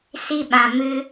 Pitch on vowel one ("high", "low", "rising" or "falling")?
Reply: high